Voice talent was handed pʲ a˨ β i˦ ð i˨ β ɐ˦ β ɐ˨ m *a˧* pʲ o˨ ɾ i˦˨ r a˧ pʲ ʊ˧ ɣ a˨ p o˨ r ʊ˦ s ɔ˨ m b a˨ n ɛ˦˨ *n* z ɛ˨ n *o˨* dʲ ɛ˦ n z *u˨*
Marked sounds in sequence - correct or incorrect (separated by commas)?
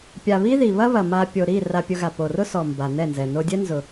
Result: correct, correct, incorrect, incorrect